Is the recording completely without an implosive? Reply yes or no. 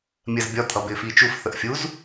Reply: yes